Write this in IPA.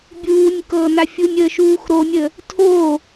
bʲ uː nʲ k ɤː n a fʲ u nʲ əː ʃ uː x ɾ o nʲ ə | tʰ o

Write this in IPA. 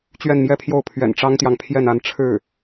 t͡ɕ ɥ ɛ˥˧ n m j ɛ˥˧ pʰ j o˥˩ ʊ̯ pʰ ɥ ɛ̰˨˩ n ʈ͡ʂ ɑ˥ ŋ t̪ j ɑ˨ ŋ pʰ j ɛ˥˧ n a˥˧ n ʈ͡ʂʰ ɻ̩˥˩

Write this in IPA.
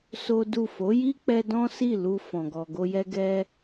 s o˦ d u˦˨ f o˨˦ j i˦ k͡p ɛ˧ d ɔ̃˦ s i˦˨ l u˧ f ɔ̃˨ ɡ ɔ˨ ɡ o˧ j ɛ˦ ɡ ɛ˦

